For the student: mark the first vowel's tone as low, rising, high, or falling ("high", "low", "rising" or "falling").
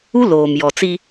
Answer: high